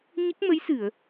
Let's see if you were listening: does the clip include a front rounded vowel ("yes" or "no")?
no